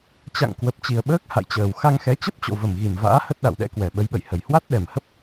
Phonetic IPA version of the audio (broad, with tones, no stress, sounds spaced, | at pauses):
t͡ɕ a̰˧˨ ŋ k w ə˨˩ p̚ t͡ɕ i˨˩ ə̯ ɓ əː˦˥ k̚ h a̰˧˨ j t͡ɕ əː˨˩ w x a˧ ŋ x ɛ˨˦ t͡ɕ ə˦˥ p̚ t͡ɕ o̰˧˨ v ə˨˩ m ɣ i˨˩ m v a̰ː˧˥ h ə˦˥ t̚ ɗ a̰˧˨ w ɗ ɛ̰˧˥ k w ɛ˨˩ ɓ ə˨˦ j ɓ ə̰˧˨ j h ə˨˩ j h w a˦˥ t̚ ɗ ɛ˨˩ m h ə˦˥ p̚